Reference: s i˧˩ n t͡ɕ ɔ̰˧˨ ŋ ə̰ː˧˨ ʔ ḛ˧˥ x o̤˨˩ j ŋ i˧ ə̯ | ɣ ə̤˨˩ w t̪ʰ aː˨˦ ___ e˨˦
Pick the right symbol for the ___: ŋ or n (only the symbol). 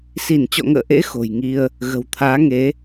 ŋ